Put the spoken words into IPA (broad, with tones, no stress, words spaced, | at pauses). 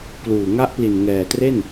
kluː˨˩ŋa˦˥ʔpli˨˩n ŋɛː˨˩tre˥˩n